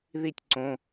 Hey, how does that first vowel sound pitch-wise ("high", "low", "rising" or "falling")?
falling